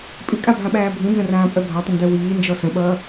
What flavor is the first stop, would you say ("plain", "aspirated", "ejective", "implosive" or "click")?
ejective